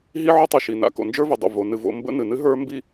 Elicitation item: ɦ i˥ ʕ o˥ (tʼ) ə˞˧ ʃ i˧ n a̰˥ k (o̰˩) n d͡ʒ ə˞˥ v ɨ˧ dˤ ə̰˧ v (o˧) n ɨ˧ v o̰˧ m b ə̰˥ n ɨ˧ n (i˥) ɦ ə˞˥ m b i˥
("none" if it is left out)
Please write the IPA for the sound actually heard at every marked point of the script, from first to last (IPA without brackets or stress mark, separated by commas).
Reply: tˤ, o̰˧, o˧, ɨ˥